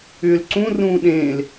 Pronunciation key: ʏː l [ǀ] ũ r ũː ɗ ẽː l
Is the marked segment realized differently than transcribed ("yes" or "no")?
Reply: no